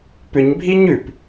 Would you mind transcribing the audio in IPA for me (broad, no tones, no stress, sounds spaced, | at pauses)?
p ʏ ɲ bʱ i ɲ ʉ p